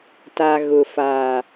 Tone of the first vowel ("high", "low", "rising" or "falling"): low